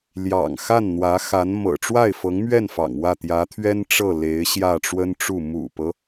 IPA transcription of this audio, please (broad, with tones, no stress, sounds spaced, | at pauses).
l j ɑ̰˨˩ ŋ x a˥˩ n n̪ w ä˧˥ x a˧˥ n m ɤ̰˨˩ ʈ͡ʂ w a˥˩ ɪ̯ f ɤ˧˥ ŋ m ɥ ɛ˥˩ n f ɑ̰˨˩ ŋ w ä˥˩ t̪ j ä˧˥ t̪ʰ ɥ ɛ˥ n ʈ͡ʂ ɤ˥˩ l e˧˥ ɪ̯ ɕ j ä˥˩ ʈ͡ʂ w ə˥ n ʈ͡ʂ u˥˩ m ṵ˨˩ p ɤ˦